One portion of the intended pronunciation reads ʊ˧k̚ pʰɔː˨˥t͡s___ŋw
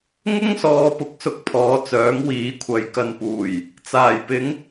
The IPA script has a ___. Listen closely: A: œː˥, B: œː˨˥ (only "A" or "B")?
B